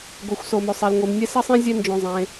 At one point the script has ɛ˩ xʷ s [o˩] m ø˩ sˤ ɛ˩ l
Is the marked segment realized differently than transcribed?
no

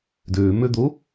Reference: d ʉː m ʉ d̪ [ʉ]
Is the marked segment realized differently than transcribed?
yes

